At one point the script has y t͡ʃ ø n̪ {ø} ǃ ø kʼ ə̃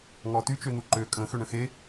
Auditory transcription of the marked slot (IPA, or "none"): u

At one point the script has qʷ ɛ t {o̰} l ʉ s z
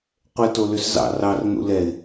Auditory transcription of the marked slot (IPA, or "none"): o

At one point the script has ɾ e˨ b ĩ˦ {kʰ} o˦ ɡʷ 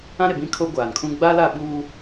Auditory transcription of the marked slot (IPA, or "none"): kʰ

